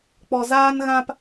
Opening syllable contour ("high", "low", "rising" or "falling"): low